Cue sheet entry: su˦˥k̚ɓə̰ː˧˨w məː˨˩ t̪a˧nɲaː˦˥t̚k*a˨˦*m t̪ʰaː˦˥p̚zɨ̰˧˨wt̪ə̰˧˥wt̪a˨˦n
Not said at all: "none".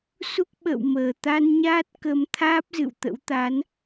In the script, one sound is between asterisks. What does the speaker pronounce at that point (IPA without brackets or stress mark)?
ə˨˦